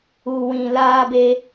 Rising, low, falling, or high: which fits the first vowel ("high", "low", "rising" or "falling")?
low